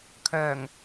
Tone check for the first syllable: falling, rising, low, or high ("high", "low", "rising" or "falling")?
low